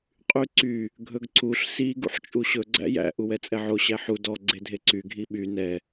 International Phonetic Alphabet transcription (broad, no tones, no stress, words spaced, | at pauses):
qʼyǀy | ɡʱɵɡǀuɬ si ɡṵħt͡ʃʼuɕɵ ɡ͡ǀæ̰jæ̰ ʔuwɛt͡sʼɛʕo ɕæħu dɔ ɡ͡ǀedʱeǀy ɡʱiɓy nɛ